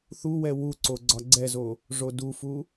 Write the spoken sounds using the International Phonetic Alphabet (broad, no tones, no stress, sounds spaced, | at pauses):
θ u w ɛ w u ǀ o ɡ͡ǀ ɒ ɡ͡ǀ ɛ z o | ʐ o d u f u